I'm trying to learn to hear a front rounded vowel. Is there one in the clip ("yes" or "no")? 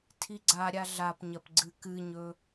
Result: no